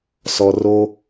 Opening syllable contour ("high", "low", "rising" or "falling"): high